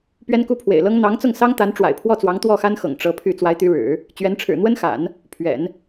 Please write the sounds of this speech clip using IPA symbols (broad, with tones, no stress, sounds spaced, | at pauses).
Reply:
p ɥ ɛ˥ n k u˥ pʰ w ḛ˨˩ ɪ̯ l ɤ˥ ŋ n̪ ɑ˧˥ ŋ t͡s ʊ˥˩ ŋ s ɑ˥ ŋ t̪ a˧˥ n ʈ͡ʂ w a̰˨˩ ɪ̯ pʰ w ɔ˥˩ t͡s w ɑ˧˥ ŋ t̪ w ɔ˥˩ x a˥ n x ɤ̰˨˩ ŋ ʈ͡ʂ ɤ˧˥ pʰ y˥˩ t͡s w a˧˥ ɪ̯ t̪ y˧˥ ɻ ɻ̩˨˩˦ | t͡ɕ ɥ ɛ˧˥ n ʈ͡ʂʰ ɻ̩˨˩ n̪ w ə˥ n x a̰˨˩˦ n | pʰ ɥ ɛ̰˨˩˦ n